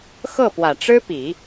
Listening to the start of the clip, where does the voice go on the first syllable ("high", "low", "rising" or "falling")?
falling